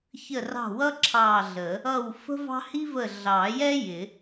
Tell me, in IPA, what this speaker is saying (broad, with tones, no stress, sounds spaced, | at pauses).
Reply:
ç ə˦˨ r ɑ̤˦˨ w ʌ˥ ǁʰ ɑ˦˨ ɮ ə˨˩˦ | ʌ˦˨ w f ə̤˥ v ɑ̤˥ h i˥ v ə˦˨ ɮ ɑ˨˩˦ j ɛ˥ j ɪ˨˩˦